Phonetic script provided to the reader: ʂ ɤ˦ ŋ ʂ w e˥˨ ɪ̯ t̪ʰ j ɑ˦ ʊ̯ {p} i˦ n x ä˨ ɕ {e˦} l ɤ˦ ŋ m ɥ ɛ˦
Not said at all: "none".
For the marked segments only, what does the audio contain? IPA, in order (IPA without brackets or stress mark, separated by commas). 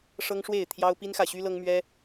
p, y˦